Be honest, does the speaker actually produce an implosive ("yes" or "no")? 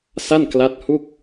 no